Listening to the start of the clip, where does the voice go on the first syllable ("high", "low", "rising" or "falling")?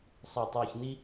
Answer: low